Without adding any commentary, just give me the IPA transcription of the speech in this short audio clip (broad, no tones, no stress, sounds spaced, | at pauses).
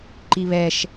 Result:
ǃ i β ɛ ʃ